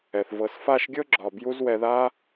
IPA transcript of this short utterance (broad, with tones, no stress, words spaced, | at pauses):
ɛ˨θ vɤ˨sfa˦˨ʃɡʲɤ˦ ɡ͡ǁɒ˨ bju˦zwɛ˧ða˦